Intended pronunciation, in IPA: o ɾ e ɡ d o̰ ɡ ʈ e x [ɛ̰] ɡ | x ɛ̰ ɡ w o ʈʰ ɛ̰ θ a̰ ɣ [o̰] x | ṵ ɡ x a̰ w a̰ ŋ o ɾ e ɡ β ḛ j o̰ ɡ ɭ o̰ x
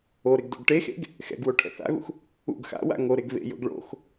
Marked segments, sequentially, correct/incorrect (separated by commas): incorrect, incorrect